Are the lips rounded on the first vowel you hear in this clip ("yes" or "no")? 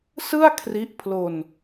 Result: no